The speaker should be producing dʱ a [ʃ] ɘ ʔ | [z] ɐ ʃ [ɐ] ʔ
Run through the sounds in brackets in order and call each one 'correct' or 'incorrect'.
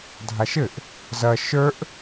correct, correct, incorrect

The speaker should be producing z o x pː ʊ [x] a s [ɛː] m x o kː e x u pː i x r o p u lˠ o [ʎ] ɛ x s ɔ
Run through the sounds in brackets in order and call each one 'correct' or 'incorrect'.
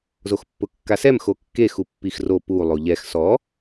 incorrect, incorrect, correct

